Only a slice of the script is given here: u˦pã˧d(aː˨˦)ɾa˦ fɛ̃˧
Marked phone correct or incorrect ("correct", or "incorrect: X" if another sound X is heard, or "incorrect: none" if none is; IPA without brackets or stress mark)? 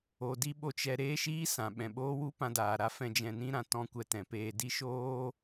incorrect: aː˨